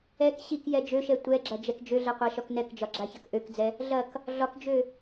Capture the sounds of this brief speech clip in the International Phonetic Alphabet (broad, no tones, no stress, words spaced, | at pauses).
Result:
ɛk ɕikjɛ d͡ʒøʃɛ tʷɛɡ͡ǁɐ d͡ʒɛkd͡ʒøɮɛ qʷaʃɒknɛkd͡ʒɒ ɡ͡ǁaçɐkʔøkd͡zɛ | ɮɐk | ɮɒkd͡ʒø